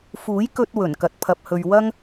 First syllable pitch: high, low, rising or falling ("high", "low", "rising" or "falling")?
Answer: rising